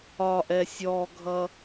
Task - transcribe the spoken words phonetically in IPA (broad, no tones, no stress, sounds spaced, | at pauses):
ɒ ʔ ɛ sʲ ɔ ɡʱ ʌ